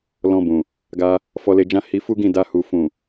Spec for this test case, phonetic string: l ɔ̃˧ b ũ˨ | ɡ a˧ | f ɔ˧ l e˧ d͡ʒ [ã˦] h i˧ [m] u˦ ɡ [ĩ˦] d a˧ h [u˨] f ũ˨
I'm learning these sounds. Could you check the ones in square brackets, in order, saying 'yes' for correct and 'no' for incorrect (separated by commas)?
yes, no, no, yes